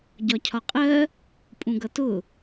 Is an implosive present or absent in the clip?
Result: absent